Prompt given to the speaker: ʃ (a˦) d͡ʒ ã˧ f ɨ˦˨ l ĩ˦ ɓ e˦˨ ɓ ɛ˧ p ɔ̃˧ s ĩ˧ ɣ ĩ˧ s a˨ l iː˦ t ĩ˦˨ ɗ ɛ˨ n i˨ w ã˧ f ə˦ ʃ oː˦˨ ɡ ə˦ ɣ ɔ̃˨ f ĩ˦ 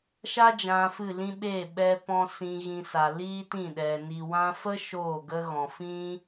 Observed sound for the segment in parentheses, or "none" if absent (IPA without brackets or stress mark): a˦